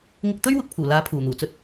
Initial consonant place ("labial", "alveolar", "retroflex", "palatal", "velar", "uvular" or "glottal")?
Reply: velar